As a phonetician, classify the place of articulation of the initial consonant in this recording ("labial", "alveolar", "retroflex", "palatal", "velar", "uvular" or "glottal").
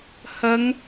glottal